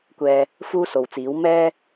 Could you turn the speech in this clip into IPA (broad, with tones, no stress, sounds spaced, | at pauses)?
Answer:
kʷ ɛː˨ | f uː˥ s o˨˧ w t͡s iː˨˥ w m ɛː˧